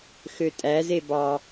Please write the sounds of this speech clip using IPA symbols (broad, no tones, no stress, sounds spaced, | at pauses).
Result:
x ø tʼ æ z e b ɑ